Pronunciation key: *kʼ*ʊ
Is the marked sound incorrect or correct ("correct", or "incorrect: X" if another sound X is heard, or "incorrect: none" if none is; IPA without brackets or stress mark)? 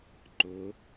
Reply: incorrect: ǃ